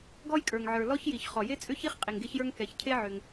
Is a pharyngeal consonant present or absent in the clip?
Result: present